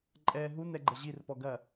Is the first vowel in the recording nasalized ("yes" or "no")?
no